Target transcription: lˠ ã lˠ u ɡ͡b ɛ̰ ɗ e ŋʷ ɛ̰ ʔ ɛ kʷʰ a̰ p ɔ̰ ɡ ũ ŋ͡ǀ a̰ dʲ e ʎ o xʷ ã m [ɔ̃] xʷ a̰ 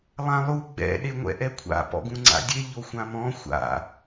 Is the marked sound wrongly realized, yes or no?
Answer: no